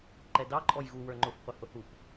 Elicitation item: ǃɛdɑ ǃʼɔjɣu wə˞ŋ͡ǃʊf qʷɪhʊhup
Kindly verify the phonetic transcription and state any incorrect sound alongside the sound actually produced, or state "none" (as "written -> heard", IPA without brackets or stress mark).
none